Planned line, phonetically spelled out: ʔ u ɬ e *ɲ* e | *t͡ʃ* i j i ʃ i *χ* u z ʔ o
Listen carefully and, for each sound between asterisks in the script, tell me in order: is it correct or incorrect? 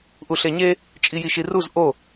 correct, incorrect: t͡ʃʼ, incorrect: r

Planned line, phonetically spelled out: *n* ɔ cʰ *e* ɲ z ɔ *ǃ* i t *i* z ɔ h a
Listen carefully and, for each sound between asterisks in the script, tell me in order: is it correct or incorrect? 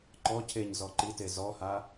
incorrect: ǃ, correct, correct, incorrect: e

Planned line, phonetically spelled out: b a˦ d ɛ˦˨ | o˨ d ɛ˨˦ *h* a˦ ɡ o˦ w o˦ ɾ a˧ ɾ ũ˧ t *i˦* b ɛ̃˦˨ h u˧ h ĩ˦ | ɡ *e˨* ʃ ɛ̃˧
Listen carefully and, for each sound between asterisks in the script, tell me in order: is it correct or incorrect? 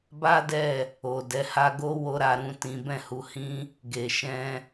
correct, incorrect: ĩ˦, correct

